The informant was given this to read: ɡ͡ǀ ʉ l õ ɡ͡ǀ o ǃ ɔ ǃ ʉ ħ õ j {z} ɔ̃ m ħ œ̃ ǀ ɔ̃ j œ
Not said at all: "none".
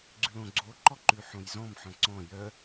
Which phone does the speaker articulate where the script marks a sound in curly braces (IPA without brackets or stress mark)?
z